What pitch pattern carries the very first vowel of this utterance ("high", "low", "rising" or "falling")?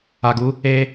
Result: low